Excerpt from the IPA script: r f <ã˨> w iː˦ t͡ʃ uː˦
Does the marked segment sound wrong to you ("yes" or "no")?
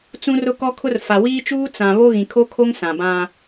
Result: yes